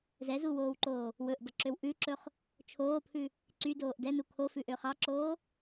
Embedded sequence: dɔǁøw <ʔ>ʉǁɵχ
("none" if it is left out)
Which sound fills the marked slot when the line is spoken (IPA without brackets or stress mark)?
ʔ